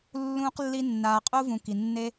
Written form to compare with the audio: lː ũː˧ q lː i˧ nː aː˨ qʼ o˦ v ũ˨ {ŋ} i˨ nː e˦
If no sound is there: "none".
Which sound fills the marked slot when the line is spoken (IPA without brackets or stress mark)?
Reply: k